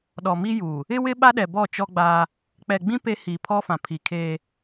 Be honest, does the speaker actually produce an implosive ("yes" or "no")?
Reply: yes